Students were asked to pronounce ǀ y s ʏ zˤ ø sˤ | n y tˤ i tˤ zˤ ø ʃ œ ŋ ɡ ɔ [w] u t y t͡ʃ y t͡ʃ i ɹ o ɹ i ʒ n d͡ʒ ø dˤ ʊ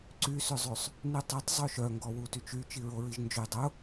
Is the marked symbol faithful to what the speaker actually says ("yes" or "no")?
yes